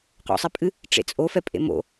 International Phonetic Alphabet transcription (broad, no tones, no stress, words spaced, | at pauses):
qo̰sˤipʼɨ | ʈ͡ʂḛt͡sʼo fɛpʼḛmo̰